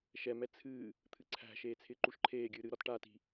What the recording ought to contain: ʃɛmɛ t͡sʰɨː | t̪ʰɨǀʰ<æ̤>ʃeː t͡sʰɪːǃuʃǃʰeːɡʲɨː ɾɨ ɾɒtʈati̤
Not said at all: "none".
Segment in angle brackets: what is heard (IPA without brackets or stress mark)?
æ̤